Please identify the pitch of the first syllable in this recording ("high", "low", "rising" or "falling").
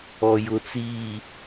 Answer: low